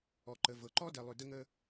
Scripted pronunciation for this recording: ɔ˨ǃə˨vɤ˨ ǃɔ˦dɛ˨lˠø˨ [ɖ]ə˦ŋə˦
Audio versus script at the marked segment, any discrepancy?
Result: yes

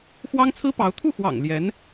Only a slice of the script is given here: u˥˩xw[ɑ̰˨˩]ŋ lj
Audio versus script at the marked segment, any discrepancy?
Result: no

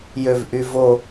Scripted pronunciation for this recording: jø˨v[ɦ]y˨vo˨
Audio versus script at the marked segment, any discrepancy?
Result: yes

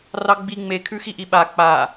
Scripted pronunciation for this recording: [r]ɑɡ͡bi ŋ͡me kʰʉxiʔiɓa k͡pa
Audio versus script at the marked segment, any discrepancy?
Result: no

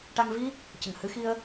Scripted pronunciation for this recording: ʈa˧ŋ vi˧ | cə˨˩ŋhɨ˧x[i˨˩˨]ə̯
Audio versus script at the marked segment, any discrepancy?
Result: yes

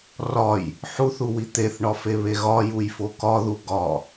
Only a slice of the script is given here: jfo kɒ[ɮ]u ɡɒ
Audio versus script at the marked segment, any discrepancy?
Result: yes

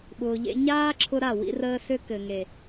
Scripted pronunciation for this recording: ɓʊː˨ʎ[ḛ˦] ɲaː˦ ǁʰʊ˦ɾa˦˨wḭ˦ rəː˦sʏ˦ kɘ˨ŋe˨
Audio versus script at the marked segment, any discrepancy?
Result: no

